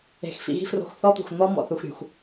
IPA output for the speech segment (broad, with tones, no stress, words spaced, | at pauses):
e̤˨xfḭ˨ɣi̤˦ fro̤˦x θɔ˦t̪ṳ˨xn̪ɔ˦mɔ̰˨ θu˨xɾʲṳ˨x